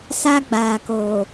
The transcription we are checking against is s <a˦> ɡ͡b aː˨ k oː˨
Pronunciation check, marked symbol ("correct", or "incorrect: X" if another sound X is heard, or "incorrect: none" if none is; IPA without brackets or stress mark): correct